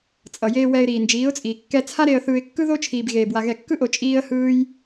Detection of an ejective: present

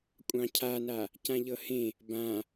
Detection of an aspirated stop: present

